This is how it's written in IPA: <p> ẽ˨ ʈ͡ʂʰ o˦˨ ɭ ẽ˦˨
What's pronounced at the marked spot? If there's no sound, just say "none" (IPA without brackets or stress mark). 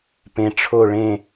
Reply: p